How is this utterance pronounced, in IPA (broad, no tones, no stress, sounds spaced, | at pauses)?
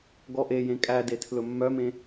ɡ ɔ ʔ e j ẽ kʼ æ d e tʰ l ɵ mː œ m ẽ